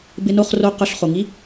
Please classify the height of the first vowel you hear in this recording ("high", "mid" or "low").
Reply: high